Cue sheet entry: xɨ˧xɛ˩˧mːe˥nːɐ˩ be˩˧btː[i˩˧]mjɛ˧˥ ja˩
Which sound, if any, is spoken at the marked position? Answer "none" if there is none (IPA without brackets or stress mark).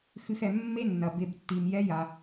i˩